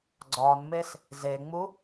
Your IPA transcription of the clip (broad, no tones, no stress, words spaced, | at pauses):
ɡ͡ǀɒnmes | zeŋ͡mu